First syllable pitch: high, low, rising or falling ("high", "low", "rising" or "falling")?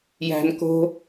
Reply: low